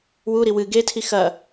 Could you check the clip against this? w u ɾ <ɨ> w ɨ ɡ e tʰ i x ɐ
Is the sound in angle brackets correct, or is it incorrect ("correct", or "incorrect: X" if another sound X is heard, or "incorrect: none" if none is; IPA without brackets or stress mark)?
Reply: incorrect: i